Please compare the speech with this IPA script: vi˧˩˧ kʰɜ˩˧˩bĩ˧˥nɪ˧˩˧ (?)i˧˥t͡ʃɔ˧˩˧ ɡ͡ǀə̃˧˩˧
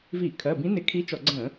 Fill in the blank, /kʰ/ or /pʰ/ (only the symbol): kʰ